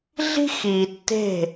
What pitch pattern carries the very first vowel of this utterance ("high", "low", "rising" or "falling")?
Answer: high